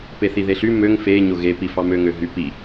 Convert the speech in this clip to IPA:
peθiðeɬy møŋ fe ɲoɣe pifɑmø ŋøɦy pi

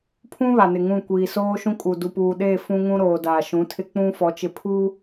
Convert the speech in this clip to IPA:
pʰũ˦ βa˨nɪ˨ŋũ˦˨ kʷiː˨soː˦ʃũ˦kʼu˨ du˨puː˨ɗeː˦˨ fũ˦ŋũ˦ɾoː˨ da˨ʃũ˨˦tʰɪ˦ k͡pũ˦fɔ˨˦t͡ʃɪ˨ pʰu˦

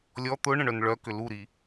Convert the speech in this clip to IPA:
lʲɔ t̪ʊ ɳə̃ɳœnɭœkʏ luɾi

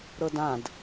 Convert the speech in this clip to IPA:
ɾɤdãd

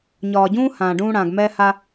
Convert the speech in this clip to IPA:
ɲɒː˨ɟũː˦ hãː˨ ɖũː˦ɽãː˨ɡ mɛː˦ha˦

